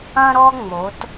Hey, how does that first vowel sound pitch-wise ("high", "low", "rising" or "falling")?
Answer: high